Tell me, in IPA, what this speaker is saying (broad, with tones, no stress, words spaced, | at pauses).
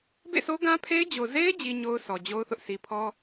bḛ˦˨so˦ɡã˦pʰe˦ɪ̯ d͡ʑo˨ ze˦ɪ̯ d͡ʑi˦ɲo˦ʊ̯sɔ˨d͡ʑo˦ʊ̯ θʊ˦ʔsi˦ pʰɔ˦